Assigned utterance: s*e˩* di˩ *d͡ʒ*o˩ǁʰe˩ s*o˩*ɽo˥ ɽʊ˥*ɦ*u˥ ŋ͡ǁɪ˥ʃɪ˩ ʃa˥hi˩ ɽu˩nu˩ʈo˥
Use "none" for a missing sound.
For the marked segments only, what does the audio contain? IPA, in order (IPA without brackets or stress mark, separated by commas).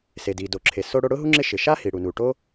e˩, d, o˥, ɦ